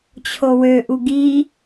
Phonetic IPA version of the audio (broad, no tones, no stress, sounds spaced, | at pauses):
t͡ɕʰ o w ø ʔ u ɡ i